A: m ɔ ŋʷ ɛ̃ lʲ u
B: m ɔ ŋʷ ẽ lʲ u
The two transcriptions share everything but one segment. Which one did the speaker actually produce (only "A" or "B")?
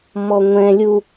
A